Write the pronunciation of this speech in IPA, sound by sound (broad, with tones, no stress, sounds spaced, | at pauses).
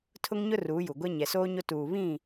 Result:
tʰ ʊ˦ ŋ ɲ ʊ˦ r uː˨˦ j u˨ ɡʷ ɛ˦ ɲ ɛ˨ s oː˦ ɲ o˦ t uː˨ β ĩ˦˨